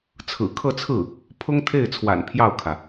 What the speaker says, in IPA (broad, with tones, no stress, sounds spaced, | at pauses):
t͡sʰ ɹ̩˨˩ kʰ ɤ˥˧ t͡sʰ ɹ̩˥˩ | pʰ ʊ˥ ŋ t̪ʰ e˥˩ ɪ̯ t͡sʰ w a̰˨˩ n pʰ j ɑ˥˩ ʊ̯ kʰ ä˩